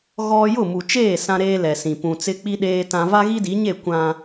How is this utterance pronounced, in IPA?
ɣ ɔ˦ j ʊ˦˨ m u˨ t͡ʃ eː˦˨ s ã˦ ɾ eː˦ l ɛ˨ s ĩ˨ p ũ˨ t͡s ɪ˦ k͡p i˦ ɗ eː˦ t ã˦ v a˦ ɣ i˦ d i˨˦ ɲ e˦˨ kʷ ã˦

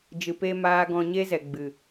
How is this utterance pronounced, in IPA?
d͡ʒ ɨ˨ p e˦ m aː˦ ɡ ɔ̃˧ ɲ e˦ z ɛ˨ ɡ͡b ɨ˨

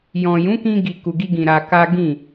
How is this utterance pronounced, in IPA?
j ɔ̃˨ j ũ˨˦ k ĩ˧ ɡ i˨ k u˨ ɡ i˧ ɡ ĩ˨ ɾ a˧ k a˦ ɡ ĩ˦˨

